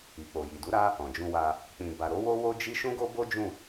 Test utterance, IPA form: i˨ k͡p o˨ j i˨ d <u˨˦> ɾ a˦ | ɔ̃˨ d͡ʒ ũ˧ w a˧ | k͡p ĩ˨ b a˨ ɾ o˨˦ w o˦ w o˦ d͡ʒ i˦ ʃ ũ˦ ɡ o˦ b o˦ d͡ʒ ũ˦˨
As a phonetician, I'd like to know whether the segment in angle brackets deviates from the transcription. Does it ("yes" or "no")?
no